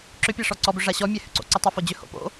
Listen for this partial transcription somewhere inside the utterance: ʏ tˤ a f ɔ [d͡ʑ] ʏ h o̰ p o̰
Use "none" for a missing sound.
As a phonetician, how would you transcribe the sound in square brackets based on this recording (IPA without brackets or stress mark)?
d͡ʑ